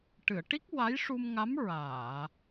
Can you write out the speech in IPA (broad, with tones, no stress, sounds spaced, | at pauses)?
ʈ ɨ˨˩˨ ə̯ ʈ i˦˥ k̚ w a˧˥ j ʂ u˧ m ŋ a˧˥ m ɹ aː˨˩˨